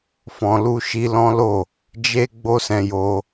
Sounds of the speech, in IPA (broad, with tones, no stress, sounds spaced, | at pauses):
f ɔ̃˧ l u˦ ʃ i˦ l ɔ̃˦ l o˦˨ | d͡ʒ e˦ ɡ͡b o˦ s ɛ̃˧ j o˧